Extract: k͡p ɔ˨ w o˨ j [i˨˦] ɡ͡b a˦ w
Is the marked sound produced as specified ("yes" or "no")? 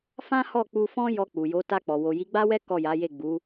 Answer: yes